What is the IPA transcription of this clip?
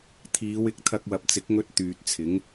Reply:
t̪ʰ iː˨˧ w ɪ˨˥ k̚ t̪ʰ ɐ˧ k̚ w ɐ˨ p̚ t͡s ɪ˨˥ k̚ ŋ ɵ˧ t̚ t̪ yː˨ t̚ t͡sʰ ɪ˨˥ ŋ

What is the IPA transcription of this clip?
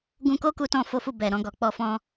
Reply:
ɡ ũ˧ k o˦ k u˧ t ɔ̃˧ f o˦ f u˦˨ b ɛ˨ ɾ ɔ̃˧ ɡ ɔ˨ k͡p ɔ˧ f ɔ̃˧

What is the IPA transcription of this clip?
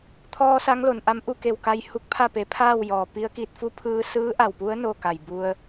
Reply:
t̪ʰ ɔː˧ s a˧˥ ŋ l o˩ n ʔ a˧˥ m ʔ u˥˨ k e˧˩ w k a˧ j h u˧ k̚ pʰ a˥˨ p e˩˧ pʰ aː˥˨ w j ɔː˩ p i˧˥ ə̯ k i˧ t̚ f u˥˨ pʰ ɯː˧ s ɯː˧˥ ʔ a˧˩ w p u˧˥ ə̯ n o˥˨ k a˧˩ j b u˧ ə̯

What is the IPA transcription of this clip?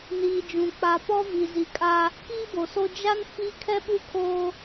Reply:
n iː˨ d͡ʒ ũ˨ k͡p a˨ p ɔ˦ v i˨ z i˨ kʼ a˦ | k iː˦ b o˨ s o˦ d͡ʒ a˦ n f i˦ kʰ ɛ˦ ɓ u˦˨ kʰ oː˦

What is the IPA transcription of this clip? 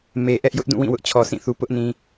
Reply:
m e˨ ʔ ɛ˦ ʔ j ʊ˦ ʔ d ũ˦˨ w ĩ˦˨ w ʊ˦ ʔ t͡ɕʰ ɔ˨ sʰ ĩ˦˨ θ u˨ p ʊ˦ ʔ n ĩ˨

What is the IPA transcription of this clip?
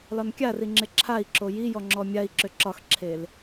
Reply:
l ɒ n kʲ a r i ŋ͡ǁ ɪ ǁʰ a i̯ ǁ o j i j ɔ ŋ͡ǁ ɔ mʲ a i̯ ǁ ʏ ǁ ɒ x ǁʰ e l

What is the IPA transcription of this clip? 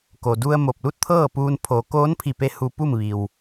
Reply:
k o˩ d u˧ ə̯ m o˧˩ p̚ l u˥˨ t̚ t̪ʰ ɤː˥˨ p uː˧ n pʰ o˩˧ k oː˧˥ n pʰ i˧˩ p e˧ h u˧ p u˥˨ m ʋ i˩ w

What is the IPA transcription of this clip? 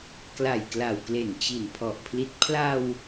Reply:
k l a˨˩ j k l a˨˩ w k l e˨˩ n t͡ɕ i˨˩ n pʰ ɔ˨˩ ʔ pʰ l i˦˥ t̚ pʰ l a˧ w

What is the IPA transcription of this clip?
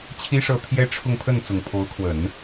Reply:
t͡ɕʰ i˥ ʂ ɤ˥˩ t̪ʰ j ɛ˥ ʈ͡ʂʰ ʊ˥˧ ŋ pʰ ə˥˩ n t͡s ʊ˨˩ ŋ pʰ o˧˥ ʊ̯ kʰ w ə˨˩˦ n

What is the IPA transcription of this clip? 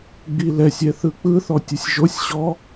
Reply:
ɡ͡b i l ɛ sʲ ɛ θ ɯ k͡p ɯ θ ɔ tʲ ɯ sʲ ʒ o sʲ ɕ ɔ

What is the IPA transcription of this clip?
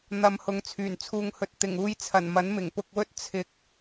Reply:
n̪ ɐ˨˧ m h ʊ˨ ŋ t͡sʰ yː˨˩ n t͡sʰ uː˧ ŋ h ɵ˧ t̚ t̪ ɪ˨˩ ŋ uː˧ j t͡sʰ ɐ˨˩ n m ɐ˨˥ n m ɪ˨˩ ŋ p ʊ˧ k̚ w ɵ˥ t̚ t͡sʰ ɪ˨ k̚

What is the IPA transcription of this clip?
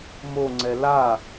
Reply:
m o ŋ͡ǀ ɛ l a

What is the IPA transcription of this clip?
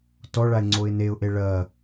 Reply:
t ɔ ɭ a ɪ̯ ŋ͡ǀ o ɪ̯ n e ʊ̯ ʔ e ɭ ɐ

